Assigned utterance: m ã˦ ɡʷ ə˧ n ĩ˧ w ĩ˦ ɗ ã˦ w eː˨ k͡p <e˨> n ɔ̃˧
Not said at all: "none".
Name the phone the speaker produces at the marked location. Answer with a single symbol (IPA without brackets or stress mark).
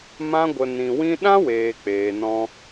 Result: eː˨